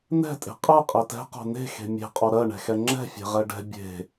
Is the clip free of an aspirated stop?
yes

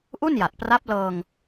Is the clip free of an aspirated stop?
yes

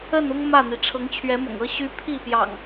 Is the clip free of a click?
yes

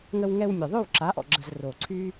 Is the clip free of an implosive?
yes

